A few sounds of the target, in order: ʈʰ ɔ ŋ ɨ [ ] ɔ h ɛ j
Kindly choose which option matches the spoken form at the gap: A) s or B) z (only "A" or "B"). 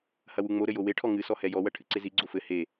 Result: A